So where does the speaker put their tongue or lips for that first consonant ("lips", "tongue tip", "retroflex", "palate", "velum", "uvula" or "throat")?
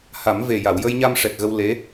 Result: throat